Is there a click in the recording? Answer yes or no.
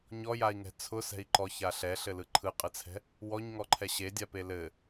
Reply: yes